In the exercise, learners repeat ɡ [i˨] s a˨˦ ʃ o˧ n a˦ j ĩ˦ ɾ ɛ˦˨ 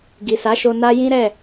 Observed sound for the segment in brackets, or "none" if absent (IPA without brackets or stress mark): i˨